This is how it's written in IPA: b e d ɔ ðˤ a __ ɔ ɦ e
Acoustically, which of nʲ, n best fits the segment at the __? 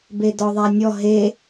nʲ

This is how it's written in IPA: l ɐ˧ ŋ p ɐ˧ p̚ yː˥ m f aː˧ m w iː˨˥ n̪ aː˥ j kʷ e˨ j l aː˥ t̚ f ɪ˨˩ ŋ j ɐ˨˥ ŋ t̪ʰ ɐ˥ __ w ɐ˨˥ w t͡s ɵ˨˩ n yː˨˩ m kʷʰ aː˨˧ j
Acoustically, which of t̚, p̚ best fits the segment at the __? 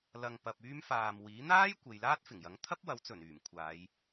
p̚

